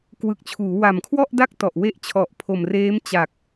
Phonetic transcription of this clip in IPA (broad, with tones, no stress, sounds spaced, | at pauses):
k w ɯ˨˩ k̚ t͡ɕʰ uː˩˦ w a˨˩ m kʰ w ɔ˥˩ ʔ d a˥˩ k̚ t ɔ˨˩ ʔ w e˥˩ ʔ t͡ɕʰ ɔ˨˩ ʔ pʰ o˨˩ m r eː˦˥ m t͡ɕ a˨˩ k̚